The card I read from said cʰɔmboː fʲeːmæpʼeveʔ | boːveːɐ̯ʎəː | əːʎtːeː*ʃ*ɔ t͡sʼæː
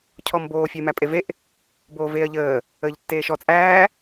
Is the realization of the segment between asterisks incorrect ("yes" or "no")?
no